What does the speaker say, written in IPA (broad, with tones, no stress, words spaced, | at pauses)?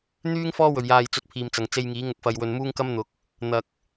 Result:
n̪yː˥ŋ fɔː˥wɵ˨˩ɥjaː˨jt͡sɵ˨˥t̚ pʰiː˨mt͡sɐ˨˩ŋt͡se˧jŋiː˨˥ ŋʊ˨k̚fɐ˨jwɵ˨n muː˥ŋkɐ˥mn̪ʊ˨˥k̚ | n̪ɐ˨k̚